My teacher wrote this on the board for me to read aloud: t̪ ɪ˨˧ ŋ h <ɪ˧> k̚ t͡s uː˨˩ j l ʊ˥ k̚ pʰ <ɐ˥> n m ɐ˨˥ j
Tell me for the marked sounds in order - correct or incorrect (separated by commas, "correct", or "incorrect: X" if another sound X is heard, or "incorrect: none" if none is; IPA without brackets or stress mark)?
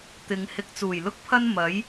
correct, correct